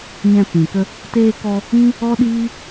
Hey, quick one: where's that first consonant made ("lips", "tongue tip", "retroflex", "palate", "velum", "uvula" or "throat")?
palate